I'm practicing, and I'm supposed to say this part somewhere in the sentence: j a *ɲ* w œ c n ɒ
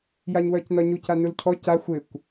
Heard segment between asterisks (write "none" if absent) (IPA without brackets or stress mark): ɲ